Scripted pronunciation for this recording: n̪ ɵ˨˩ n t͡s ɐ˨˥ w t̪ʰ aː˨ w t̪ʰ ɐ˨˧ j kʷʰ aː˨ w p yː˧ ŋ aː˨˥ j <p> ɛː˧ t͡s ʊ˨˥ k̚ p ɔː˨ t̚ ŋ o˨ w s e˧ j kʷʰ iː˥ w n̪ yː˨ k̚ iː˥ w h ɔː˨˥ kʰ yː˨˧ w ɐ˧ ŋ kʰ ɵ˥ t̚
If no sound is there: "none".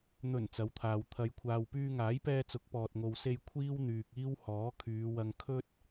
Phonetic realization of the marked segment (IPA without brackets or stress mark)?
p